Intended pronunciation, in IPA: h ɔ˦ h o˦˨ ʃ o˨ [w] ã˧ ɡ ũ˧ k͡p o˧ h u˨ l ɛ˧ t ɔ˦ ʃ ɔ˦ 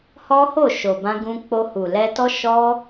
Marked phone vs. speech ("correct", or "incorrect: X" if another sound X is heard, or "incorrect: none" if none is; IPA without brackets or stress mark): incorrect: b